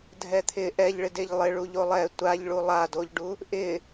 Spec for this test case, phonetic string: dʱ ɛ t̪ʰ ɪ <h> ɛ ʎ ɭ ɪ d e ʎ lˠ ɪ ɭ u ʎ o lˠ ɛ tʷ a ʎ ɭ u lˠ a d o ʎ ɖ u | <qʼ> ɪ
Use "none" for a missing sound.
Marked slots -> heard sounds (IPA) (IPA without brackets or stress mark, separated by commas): ʔ, ʔ